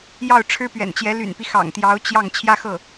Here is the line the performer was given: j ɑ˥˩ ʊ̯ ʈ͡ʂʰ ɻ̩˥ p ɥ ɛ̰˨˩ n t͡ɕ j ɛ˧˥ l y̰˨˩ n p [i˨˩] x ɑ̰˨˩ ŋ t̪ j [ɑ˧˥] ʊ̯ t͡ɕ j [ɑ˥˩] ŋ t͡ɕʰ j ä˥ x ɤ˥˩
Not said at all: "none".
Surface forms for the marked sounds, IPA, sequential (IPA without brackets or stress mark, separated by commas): i˦, ɑ˧˥, ɑ˥˩